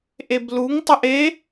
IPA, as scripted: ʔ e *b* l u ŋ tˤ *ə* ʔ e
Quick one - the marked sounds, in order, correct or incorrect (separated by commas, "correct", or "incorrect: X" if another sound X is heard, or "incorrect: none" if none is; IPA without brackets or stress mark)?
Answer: correct, correct